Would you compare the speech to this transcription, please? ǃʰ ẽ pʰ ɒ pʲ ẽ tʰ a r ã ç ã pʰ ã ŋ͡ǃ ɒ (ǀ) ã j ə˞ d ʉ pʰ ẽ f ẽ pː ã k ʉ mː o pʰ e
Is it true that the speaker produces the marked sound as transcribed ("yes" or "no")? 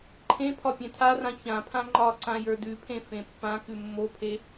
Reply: yes